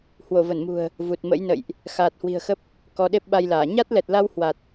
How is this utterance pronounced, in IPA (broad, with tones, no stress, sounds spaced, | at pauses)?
h w o˧˩ v ə˧˩ n m ṳ˨˩ ə̯ | v u˨˩ t̚ m ə̰˧˥ j n ə̰˧˨ j ʔ | x aː˨˩ t̚ h w i̤˨˩ ə̯ x ə˦˥ p̚ | k ɔ˨˦ ɗ e˦˥ p̚ ɓ a˧ j l aː˧˩ ɲ a˦˥ t̚ l ɛ˨˩ t̚ l a˧ w h w a˨˩ t̚